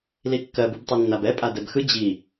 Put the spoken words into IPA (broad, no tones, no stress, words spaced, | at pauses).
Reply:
likːɜ bɯbtˤinːabɛ pʼadɛbxɯ d͡ʑi